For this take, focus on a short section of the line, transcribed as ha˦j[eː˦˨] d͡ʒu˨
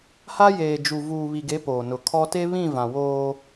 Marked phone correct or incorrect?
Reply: incorrect